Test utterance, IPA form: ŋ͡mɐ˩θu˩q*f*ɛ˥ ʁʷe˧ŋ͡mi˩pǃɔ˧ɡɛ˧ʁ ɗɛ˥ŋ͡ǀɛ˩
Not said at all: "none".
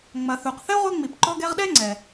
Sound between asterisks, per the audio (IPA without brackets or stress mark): θ